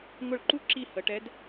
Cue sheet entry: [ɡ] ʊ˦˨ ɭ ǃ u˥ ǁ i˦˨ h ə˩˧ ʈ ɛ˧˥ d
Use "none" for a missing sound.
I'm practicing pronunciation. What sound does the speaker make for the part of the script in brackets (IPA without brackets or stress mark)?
ŋ